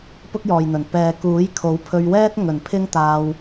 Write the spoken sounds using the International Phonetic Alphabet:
pʊ˥k̚jɔː˨jn̪ɵ˨˩n pɛː˨ kuː˨˥jkʰo˨˥w pʰɵ˧ɥwɛː˥t̚ ŋɵ˨˩npʰɪ˥ŋt̪aː˧w

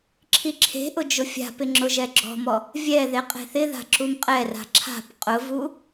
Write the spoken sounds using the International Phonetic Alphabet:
ǁʰiǁʰe̤ʔʊ d͡ʒʊfʲa̤pɪ ŋ͡ǁʊʒɛɡ͡ǁɔ̤mɔ | vʲɛðe qʼe̤θɪða̤ ǁumqʼɛra̤ ǁʰa̤p qʼʊvu

